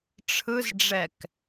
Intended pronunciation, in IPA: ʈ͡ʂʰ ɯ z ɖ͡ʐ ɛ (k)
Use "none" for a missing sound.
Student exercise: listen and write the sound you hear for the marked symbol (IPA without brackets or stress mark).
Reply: k